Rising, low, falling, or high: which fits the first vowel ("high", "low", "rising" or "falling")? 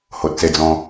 low